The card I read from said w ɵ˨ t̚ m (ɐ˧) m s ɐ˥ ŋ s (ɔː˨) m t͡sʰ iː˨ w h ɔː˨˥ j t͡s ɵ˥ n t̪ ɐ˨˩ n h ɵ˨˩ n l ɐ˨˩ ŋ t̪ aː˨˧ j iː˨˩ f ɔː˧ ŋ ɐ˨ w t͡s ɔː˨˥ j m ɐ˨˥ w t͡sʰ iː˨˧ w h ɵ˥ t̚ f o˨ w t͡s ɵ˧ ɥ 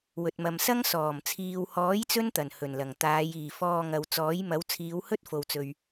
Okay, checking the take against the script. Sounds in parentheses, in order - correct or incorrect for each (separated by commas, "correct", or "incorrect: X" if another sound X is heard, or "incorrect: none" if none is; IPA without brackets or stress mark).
incorrect: ɐ˨, incorrect: ɔː˨˩